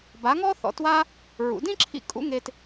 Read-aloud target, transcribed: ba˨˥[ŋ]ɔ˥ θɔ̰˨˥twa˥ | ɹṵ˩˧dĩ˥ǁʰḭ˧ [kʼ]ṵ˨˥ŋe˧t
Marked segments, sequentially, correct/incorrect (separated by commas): correct, correct